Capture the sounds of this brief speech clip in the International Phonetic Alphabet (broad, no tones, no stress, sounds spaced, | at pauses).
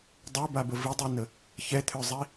dˤ ø b a b ə v i dˤ ø n ə | ç ɛ t̪ʰ ø zˤ i